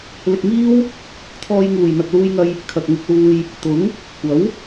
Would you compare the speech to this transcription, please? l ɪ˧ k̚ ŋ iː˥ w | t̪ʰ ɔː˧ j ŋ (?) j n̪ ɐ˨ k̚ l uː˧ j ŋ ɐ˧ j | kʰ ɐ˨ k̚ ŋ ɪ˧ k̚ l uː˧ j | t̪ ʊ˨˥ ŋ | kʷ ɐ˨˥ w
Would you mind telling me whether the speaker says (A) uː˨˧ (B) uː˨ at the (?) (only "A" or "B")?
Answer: B